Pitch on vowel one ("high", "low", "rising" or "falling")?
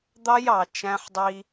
high